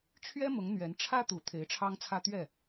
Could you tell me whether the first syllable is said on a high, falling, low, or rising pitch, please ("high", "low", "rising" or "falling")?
high